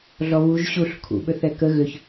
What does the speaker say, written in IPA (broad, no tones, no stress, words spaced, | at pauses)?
ɮɔβuʒ ɕuɬ kʰṵɓʏθɛ kə ɣʏç